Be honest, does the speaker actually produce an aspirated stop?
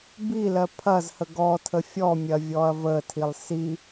yes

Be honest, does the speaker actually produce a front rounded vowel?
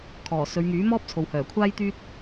yes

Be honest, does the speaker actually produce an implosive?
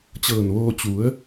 no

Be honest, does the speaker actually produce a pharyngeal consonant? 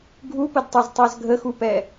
no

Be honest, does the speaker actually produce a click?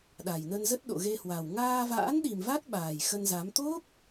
no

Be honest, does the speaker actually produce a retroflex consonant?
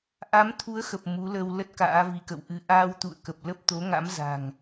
no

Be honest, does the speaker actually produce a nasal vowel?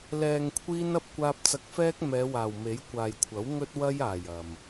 no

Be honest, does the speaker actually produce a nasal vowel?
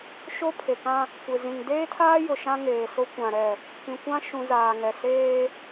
yes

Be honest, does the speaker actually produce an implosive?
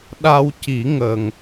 yes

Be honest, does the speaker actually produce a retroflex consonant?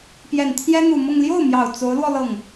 no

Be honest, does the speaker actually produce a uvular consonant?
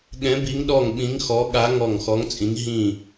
no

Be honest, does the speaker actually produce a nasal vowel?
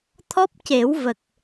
no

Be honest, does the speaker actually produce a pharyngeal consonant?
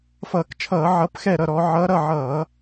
yes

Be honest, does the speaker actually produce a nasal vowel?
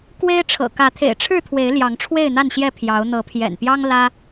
no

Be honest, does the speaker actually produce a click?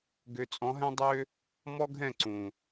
yes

